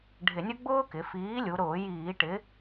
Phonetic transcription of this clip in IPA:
ɖʱɪ˧˩˧nʲʊ˥ ɡ͡bʊː˥kɪ˩˧ fiː˨˥lʲu˩˧ɾʊː˧˩˧ jiː˧˩˧ʈɪ˨˥

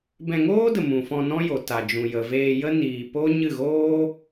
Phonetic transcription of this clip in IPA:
bɛ̃˧ŋoː˦də˨ mũ˨fɔ̃˧nɔ̃˦jo˨ ta˨d͡ʒũ˨jə˨veː˧ jə˦ niː˨ po˦ ɲɨ˦˨ɣoː˦

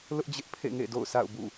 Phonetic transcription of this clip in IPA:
lʊ˦ʔd͡ʑɪ˦ʔpʰḛ˦˨ŋḛ˦˨ do̰˦˨ʊ̯sʰa̰˦˨ʊ̯ bṵ˦˨

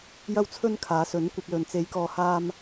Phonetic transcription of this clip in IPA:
jɐ˧wt͡sʰɵ˧n kʰaː˨˥sɵ˨˥nkʷɐ˧p̚lɵ˨n t͡se˨˧jkɔː˨haː˧m

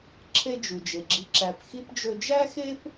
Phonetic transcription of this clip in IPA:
ǁʰe˦ d͡ʒʉ˩d͡ʒe˩ɡ͡ǁi˨ ǁæ˨pxi˥pd͡ʒɵ˦ d͡ʒæ˥xe˥p

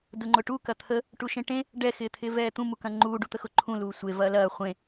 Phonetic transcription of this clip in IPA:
dʊŋ͡ǃʊʈu kɐt̪ʰə | ʈuʃẽʈẽ | ɖɛ xɪːt̪ʰɪːvɛːt̪ũ mukɐ̃ŋ͡ǃuː ɖut̪əxʊ ǃʰũ luːsʷe vɐːlɐː χʷẽ

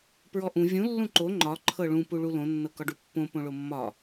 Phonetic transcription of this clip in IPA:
pɹɔʔũ vʲũ lːũǃo ŋ͡ǃɒ ǃʰɤɭũ puɭulõ nːɤkɒɖupːõ põɭomːɒ

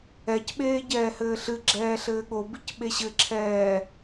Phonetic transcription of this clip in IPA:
ɛcɓeː ɟɛːhɘːɬɨɡ͡ǁɛː ɬɘːɠobic ɓeɕɘǁʰɛː

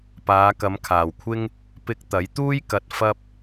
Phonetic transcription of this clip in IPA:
paː˨˧ kɐ˨˧mkʰaː˨wkʷʰɪ˥ŋ | pɪ˧k̚t̪ɐ˨˥jt̪uː˥j kɐ˧t̚ fɐ˥p̚

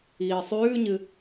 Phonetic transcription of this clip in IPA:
iːsˤʉːɲɨ

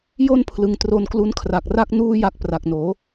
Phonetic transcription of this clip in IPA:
jo˥˩npʰlɯ˩˦ŋ tro˧nklu˦˥nkʰra˨˩k̚ ra˥˩k̚nuː˥˩ja˦˥k̚ pra˨˩k̚noː˩˦

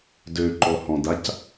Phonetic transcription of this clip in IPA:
døǃɔhɔ̃dac

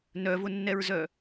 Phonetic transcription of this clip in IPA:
nœvʊnːɛɹzœ

